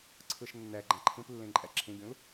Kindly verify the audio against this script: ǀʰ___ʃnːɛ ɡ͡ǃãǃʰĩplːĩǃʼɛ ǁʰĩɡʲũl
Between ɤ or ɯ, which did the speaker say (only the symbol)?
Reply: ɯ